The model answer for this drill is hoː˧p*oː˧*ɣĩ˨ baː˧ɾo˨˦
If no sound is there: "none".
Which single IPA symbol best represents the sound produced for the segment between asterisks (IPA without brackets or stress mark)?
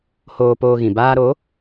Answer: oː˧